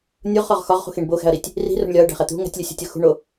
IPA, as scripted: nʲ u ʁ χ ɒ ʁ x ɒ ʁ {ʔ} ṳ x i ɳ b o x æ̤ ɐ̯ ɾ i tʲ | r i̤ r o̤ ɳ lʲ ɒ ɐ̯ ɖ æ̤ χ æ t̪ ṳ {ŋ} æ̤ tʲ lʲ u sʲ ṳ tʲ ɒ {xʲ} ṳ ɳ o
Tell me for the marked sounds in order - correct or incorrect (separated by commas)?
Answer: incorrect, correct, incorrect